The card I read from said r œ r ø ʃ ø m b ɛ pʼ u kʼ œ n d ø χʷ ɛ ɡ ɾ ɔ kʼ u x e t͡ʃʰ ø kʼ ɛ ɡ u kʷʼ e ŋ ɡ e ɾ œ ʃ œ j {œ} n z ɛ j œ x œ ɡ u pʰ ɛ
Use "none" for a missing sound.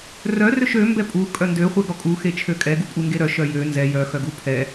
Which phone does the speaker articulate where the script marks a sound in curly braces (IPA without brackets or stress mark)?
ø